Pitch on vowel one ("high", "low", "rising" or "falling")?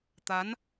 rising